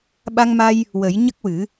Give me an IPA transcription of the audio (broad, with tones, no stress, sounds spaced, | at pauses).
ɓ a˧ ŋ m a˧ j | w ə˨˩˦ j ɲ ə˦˥ k̚ w ɨ˨˩˦